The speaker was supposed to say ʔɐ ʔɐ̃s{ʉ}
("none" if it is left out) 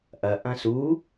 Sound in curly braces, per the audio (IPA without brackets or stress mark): u